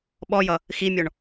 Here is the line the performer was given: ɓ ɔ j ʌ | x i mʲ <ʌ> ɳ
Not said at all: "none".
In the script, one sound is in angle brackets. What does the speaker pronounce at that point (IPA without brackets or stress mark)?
ɔ